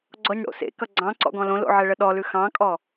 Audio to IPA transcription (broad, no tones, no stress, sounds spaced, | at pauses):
ɡ͡ǀ ɔ ɲ ɽ o̰ s ḛ k ʌ ɡ͡ǀ ɑ̃ ǀ ɔ̰ ɡ ɔ̃ l õ l o̰ ʕ ɛ ɭ ə ɗ ɔ l ʉ x ɑ̃ kʼ ɔ